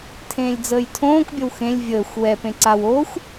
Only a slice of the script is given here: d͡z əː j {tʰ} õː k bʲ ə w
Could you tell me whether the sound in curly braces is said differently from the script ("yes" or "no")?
no